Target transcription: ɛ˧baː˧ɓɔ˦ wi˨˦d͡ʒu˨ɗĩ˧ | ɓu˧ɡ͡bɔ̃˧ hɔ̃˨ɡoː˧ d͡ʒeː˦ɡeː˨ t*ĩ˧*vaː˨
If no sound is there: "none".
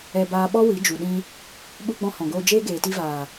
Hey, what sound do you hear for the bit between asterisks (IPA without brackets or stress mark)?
i˧